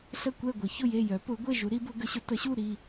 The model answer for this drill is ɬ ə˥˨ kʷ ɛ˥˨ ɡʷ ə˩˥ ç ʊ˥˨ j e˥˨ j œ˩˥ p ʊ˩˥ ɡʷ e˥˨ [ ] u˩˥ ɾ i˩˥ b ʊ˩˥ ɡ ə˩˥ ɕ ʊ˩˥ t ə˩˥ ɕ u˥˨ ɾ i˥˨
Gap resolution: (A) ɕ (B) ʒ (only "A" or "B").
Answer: B